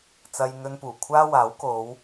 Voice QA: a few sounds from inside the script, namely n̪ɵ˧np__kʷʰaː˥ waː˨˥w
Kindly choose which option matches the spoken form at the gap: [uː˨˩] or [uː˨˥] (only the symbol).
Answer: uː˨˩